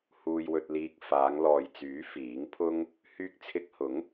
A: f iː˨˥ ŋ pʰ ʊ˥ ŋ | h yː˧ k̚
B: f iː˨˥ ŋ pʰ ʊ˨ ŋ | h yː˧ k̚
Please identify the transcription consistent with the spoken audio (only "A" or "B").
A